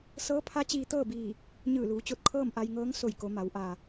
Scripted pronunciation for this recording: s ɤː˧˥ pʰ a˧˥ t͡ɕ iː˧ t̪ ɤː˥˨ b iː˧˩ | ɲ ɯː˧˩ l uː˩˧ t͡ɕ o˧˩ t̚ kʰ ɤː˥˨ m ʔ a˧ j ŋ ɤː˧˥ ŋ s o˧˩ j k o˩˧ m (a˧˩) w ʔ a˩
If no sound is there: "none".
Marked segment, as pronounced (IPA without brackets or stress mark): a˩˧